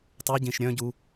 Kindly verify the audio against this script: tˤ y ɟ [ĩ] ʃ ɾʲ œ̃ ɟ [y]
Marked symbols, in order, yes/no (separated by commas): yes, no